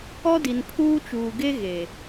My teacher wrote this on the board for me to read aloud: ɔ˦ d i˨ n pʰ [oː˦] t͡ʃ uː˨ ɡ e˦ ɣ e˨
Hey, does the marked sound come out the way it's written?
no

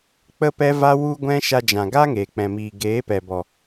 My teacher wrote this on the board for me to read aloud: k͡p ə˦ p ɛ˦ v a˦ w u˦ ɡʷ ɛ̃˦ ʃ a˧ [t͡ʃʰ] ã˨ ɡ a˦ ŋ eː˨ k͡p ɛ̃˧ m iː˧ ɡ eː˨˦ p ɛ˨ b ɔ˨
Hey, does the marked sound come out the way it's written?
no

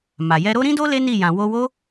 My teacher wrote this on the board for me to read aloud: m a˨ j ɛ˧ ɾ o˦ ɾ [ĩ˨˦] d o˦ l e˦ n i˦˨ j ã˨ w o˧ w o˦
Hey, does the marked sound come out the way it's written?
no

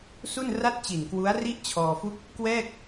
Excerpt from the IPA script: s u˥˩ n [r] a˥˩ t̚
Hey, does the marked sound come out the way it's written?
yes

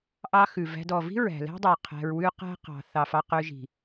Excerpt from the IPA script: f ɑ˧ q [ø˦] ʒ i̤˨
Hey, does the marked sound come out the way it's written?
no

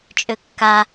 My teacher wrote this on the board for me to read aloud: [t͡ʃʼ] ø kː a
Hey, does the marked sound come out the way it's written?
yes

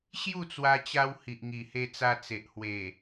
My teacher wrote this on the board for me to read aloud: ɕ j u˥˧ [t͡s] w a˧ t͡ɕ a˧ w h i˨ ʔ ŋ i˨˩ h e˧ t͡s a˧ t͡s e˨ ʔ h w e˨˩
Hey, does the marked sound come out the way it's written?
yes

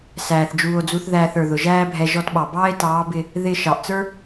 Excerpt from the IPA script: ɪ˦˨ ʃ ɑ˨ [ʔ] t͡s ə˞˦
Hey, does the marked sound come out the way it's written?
yes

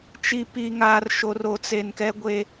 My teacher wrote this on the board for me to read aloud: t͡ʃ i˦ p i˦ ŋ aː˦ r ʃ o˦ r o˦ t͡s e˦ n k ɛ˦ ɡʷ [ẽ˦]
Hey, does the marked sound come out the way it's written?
no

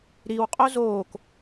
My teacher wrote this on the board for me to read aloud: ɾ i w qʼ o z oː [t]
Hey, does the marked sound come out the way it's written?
no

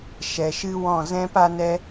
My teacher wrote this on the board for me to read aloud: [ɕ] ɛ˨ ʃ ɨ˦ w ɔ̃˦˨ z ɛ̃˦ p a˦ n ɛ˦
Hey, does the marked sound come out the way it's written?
no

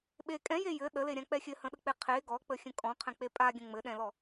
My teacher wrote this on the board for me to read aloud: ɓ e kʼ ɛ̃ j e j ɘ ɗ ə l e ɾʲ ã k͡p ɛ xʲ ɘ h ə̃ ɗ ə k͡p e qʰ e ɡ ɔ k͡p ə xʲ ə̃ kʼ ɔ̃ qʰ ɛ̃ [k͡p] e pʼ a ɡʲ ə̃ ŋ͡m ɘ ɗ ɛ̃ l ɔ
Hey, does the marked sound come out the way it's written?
yes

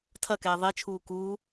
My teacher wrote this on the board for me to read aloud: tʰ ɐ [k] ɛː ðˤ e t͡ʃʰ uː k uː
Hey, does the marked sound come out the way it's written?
yes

